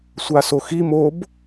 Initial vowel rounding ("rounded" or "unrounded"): unrounded